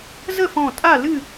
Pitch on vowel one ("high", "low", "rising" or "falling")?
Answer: falling